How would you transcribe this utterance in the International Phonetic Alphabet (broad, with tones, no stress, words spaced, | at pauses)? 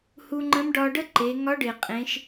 hu˧ŋ͡ǃə̃˧˥m ɖɒ˧ɖə˥ǃe˩˧ ŋɒ˧˥ɖɪ˩ qʼẽ˩˧ʃ